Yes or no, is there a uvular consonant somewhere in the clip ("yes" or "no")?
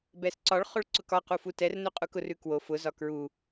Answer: yes